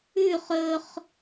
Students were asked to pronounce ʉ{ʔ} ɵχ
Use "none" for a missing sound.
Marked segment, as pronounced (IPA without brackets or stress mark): χ